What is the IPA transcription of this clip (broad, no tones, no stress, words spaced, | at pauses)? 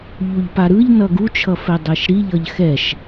ʎuʎpaɾɯʎ nʌɡut͡ʃʰʌfɛ dˤɛʃɾiʎʌʎ xɛʃ